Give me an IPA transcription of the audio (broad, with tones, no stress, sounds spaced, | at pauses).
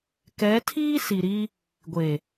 k ɛ˨˦ tʰ iː˦ s i˨ ɾ i˦ | ɡʷ e˨